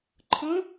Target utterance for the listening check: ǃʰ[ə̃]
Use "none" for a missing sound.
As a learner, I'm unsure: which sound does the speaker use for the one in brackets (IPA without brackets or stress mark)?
ə̃